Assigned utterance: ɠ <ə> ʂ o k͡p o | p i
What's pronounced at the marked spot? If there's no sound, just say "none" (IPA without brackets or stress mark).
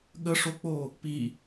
ə